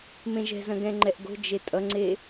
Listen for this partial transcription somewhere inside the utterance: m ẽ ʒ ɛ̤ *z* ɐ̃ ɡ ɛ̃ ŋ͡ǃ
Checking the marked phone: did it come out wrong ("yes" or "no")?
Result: no